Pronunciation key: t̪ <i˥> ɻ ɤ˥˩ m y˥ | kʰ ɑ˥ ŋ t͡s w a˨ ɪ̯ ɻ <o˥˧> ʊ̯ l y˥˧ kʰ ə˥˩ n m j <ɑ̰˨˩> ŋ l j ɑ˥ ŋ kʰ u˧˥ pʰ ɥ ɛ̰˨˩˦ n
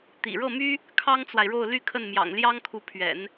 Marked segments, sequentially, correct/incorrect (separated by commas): incorrect, correct, correct